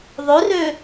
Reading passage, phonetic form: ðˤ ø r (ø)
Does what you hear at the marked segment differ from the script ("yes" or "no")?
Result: no